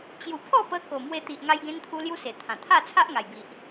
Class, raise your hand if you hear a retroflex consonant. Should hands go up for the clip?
no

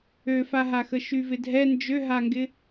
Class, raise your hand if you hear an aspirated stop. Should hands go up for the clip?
no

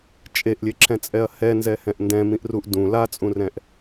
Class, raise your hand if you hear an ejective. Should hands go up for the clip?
yes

